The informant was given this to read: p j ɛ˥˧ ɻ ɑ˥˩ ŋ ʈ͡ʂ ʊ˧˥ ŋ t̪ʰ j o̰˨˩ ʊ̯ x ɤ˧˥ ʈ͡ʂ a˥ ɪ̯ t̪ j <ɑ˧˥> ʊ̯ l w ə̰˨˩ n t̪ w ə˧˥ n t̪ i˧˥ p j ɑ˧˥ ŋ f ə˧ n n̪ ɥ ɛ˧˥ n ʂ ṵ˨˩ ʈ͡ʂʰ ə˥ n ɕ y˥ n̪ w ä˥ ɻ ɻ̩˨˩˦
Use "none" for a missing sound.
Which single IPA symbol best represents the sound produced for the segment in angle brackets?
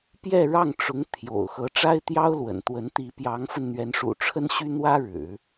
ɑ˥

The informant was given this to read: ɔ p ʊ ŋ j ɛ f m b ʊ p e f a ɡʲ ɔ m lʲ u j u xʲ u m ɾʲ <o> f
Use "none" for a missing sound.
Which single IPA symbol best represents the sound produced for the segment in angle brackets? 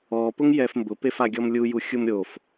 o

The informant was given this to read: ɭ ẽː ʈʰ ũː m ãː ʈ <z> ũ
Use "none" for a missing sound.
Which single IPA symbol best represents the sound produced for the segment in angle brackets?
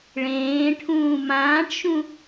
ʃ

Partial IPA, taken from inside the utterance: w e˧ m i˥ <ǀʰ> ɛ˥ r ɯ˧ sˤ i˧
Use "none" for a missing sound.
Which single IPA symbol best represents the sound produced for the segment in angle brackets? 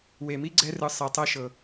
ɡ͡ǀ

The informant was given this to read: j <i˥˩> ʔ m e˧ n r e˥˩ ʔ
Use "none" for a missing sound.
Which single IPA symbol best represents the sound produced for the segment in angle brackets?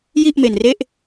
i˥˩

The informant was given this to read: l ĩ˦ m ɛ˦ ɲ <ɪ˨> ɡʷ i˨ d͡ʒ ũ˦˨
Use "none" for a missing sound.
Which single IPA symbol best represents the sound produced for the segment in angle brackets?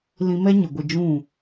ɪ˨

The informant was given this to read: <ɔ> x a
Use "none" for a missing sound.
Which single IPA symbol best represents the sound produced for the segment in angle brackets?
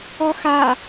ɔ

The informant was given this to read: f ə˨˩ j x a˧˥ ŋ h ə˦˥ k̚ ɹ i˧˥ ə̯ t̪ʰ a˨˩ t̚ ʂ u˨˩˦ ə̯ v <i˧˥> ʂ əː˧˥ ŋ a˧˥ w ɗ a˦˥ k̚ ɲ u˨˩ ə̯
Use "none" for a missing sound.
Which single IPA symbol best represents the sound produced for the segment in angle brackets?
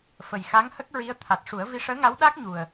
i˧˥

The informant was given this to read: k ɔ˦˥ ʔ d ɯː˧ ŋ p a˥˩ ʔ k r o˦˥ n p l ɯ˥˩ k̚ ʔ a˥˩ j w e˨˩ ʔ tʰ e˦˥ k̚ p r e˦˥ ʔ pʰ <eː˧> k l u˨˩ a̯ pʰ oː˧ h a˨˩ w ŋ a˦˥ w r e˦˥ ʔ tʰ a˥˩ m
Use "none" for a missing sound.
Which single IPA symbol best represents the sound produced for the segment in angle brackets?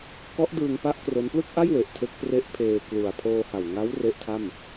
eː˧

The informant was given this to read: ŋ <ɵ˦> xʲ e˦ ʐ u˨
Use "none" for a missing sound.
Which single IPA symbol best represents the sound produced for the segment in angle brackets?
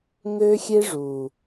ø˦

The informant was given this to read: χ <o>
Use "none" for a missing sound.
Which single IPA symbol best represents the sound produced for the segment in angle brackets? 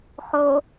o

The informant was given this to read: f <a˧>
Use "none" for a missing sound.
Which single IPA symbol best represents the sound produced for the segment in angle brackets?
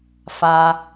a˧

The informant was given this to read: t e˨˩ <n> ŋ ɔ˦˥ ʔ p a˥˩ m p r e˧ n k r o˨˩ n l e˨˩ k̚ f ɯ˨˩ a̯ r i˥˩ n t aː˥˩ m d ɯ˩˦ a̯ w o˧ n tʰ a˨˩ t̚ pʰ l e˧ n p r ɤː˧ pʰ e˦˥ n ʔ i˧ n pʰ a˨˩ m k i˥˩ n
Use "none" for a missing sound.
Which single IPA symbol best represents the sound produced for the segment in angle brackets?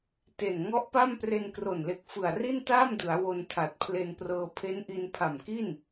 n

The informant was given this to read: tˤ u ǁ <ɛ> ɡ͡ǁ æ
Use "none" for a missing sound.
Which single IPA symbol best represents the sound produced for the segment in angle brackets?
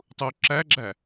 æ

